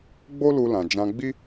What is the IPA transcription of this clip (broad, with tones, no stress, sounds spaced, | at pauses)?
ɡ͡b o˦ l u˧ l ã˨ d͡ʒ ã˧ ɡ͡b i˦